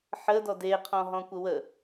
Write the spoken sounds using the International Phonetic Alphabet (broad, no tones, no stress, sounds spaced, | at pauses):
ħ ə d ɔ d e qʰ ɔ̃ ɦ ɔ̃ kʷ ə w ə